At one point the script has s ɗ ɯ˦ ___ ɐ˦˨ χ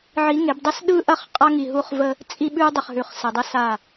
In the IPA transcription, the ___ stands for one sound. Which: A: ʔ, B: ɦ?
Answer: A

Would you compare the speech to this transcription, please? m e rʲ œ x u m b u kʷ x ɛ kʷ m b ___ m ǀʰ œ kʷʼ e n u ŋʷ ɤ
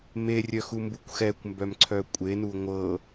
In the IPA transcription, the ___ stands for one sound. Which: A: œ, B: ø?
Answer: A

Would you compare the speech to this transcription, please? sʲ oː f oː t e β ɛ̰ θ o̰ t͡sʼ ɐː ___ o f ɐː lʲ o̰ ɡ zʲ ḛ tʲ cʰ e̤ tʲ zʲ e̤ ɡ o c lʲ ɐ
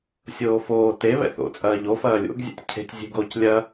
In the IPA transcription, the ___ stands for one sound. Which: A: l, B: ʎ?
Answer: B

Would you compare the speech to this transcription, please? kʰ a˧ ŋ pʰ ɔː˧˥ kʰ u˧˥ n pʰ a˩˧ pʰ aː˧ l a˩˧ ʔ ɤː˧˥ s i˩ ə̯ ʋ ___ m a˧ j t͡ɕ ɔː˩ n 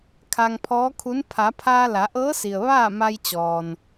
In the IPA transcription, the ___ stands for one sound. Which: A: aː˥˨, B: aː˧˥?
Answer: A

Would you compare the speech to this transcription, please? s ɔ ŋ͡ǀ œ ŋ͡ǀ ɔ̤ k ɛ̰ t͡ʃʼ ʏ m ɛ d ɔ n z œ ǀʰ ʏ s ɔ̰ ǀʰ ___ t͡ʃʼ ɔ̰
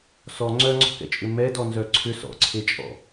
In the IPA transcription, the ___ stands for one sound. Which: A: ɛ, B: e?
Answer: B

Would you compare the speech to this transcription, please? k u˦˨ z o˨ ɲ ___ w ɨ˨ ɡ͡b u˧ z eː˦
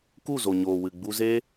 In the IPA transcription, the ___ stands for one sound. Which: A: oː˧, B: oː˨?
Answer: B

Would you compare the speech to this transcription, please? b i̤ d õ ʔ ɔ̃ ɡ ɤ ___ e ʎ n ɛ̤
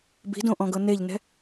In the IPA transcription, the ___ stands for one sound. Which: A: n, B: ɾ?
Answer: A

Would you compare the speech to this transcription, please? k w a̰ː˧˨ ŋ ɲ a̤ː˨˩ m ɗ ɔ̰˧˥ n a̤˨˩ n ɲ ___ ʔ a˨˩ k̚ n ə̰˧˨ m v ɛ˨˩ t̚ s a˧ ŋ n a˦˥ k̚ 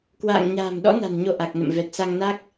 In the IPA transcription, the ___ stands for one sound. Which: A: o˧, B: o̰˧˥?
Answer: A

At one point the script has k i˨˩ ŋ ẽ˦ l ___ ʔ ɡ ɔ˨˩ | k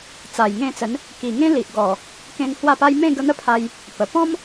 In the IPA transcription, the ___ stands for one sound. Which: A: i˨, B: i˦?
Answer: A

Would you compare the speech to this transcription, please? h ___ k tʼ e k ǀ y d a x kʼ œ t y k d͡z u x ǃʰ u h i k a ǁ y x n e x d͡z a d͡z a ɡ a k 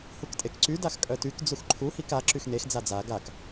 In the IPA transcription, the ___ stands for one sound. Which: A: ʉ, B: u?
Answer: B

